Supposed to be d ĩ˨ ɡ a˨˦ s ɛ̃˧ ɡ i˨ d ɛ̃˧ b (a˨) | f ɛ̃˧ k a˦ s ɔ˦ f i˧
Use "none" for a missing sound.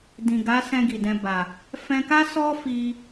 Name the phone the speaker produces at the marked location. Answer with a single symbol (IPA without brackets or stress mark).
a˨